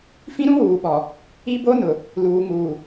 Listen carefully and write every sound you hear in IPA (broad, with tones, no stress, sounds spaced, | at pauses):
f ĩ˦ ɾ ũ˦ w uː˨ ɓ ɔ˨ | i˦ b o˦ n ʊ˨ | l uː˨ ŋ uː˨